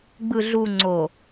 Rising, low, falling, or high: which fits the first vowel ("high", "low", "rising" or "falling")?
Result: low